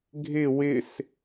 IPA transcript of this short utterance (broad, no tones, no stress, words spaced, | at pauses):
ɡʱɪ wɪs